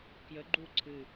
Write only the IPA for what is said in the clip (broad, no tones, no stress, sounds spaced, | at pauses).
k j ə ɡ͡ǃ u ǀʰ ɨ